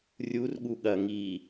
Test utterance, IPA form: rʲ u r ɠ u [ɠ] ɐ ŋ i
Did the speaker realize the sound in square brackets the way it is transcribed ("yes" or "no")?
yes